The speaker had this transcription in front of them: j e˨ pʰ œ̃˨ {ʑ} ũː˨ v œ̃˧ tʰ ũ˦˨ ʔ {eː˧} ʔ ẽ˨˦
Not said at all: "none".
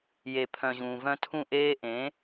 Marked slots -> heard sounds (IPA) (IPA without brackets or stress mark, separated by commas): ʑ, eː˦